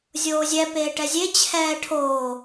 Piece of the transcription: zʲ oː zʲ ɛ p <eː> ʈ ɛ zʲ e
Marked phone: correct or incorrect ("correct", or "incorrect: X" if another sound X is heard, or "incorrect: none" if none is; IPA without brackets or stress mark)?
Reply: correct